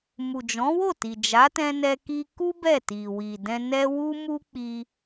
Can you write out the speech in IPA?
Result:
mu˨d͡ʒɔ̃˨˦wo˦˨ti˨ d͡ʒa˨˦tɛ̃˧nɛ˧ki˧ ku˦ bɛ˦˨ti˨ wi˨dɛ̃˧nɛ˦ wu˦mu˦k͡pi˧

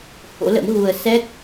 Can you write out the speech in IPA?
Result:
ho̰˧˥lə̰˧˥m ɣu˧ə̯ sɛ˦˥k̚

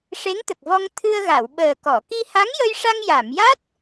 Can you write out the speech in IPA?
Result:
ʂe˧˥ŋt̪ə˨˩k̚vɔ˧ŋ t̪ʰɨ˧ə̯ɣa˨˩˨wɓəː˨˩kɔ˨˩˨ ki˧ha˧˥ŋjə˧jʂa˧ŋ ja˨˩˨mja˦˥t̚

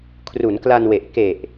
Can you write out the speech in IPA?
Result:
kʰru˩˦nkla˧nwe˨˩ʔ ke˨˩ʔ

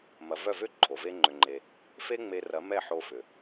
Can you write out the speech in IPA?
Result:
mɐ˨vœ˦˨vʏ˦ ǃʰo˨ve˦ŋ͡ǃʏ˧ŋ͡ǃe˧ | fe˦ŋ͡me˧ rɐ˨˦ mɛ˦˨ħo˧fʏ˨

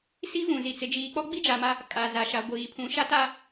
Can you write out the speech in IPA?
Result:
si˦vũ˨zi˨ t͡sɪ˨d͡ʒiː˨k͡pɔ˦ ɡ͡bi˦d͡ʒa˨ma˦ | kʼa˨za˨ ʃa˨ ɡʷiː˨ pʰũ˨ʃa˦ta˦

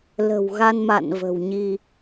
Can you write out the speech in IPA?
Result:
lə̤˨˩wɣa˧nma̰˧˨n və̤˨˩wɲi˧

